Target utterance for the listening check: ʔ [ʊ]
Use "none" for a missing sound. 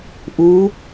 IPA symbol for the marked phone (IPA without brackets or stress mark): u